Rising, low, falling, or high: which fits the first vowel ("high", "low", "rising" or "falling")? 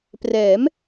rising